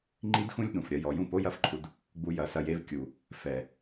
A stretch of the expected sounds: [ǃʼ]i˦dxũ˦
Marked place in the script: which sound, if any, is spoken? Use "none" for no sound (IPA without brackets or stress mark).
ŋ͡ǃ